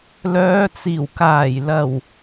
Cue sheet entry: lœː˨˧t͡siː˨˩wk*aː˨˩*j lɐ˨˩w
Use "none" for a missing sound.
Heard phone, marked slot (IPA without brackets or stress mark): aː˨˩